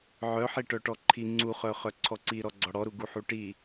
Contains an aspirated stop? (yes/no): yes